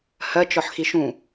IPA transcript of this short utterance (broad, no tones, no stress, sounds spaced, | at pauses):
h ɜ t͡ʃ ɔ ħ x i ʃ ũ